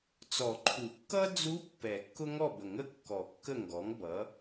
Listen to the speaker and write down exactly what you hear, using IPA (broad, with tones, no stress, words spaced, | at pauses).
t͡sɔ˨˩˦ǃʰu˨˩˦kːʌ˥ d͡zu˧˥ pːɛ˨˩˦kːʊ˥ŋɔ˥˨bə˨˩˦ŋ ə˥kːɔ˨˩˦ kːə˥˨ŋɡɔ˩˥ŋbʌ˩˥